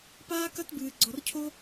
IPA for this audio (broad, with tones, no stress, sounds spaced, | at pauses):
p aː˥ k ɐ˥ t b ɨː˧ ɡ͡ǀ ɔ˧ r cʰ o˥